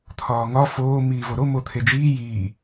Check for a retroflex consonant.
absent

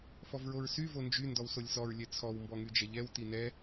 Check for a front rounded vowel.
present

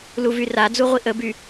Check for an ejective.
absent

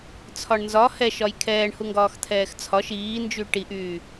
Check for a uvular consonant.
absent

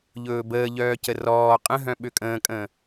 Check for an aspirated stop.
absent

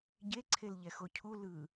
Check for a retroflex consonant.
absent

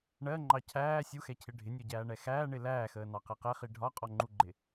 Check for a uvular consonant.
present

